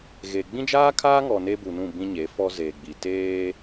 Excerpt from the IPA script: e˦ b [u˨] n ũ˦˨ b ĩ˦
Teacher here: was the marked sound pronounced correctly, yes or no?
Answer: yes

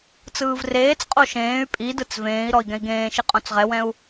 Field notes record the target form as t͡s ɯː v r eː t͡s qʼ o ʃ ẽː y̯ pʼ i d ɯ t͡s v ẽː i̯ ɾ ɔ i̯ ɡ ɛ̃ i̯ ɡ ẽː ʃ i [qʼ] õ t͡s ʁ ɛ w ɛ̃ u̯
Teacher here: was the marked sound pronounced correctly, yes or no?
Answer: yes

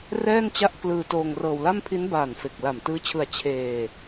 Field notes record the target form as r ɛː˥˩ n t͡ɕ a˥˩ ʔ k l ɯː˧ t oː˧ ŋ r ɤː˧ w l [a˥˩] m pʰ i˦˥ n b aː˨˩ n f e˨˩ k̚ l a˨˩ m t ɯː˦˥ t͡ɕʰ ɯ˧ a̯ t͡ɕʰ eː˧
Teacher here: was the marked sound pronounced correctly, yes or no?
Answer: yes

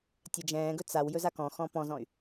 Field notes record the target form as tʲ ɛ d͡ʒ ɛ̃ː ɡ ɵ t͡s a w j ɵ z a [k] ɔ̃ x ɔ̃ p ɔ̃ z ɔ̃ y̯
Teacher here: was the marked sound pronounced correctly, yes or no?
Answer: yes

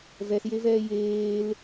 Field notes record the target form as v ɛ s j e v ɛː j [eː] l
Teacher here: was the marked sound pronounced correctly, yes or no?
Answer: yes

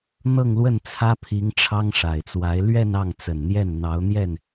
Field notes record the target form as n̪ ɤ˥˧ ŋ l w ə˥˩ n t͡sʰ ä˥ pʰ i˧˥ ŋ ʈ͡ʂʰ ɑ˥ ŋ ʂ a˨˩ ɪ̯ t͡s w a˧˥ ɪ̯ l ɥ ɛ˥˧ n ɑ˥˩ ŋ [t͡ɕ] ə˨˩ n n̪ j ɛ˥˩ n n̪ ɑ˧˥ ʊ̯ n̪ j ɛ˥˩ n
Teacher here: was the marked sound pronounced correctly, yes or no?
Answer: no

